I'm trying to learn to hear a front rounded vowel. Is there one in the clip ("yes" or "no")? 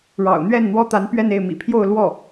no